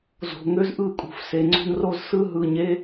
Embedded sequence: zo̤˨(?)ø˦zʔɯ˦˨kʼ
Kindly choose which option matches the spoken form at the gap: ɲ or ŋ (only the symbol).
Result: ŋ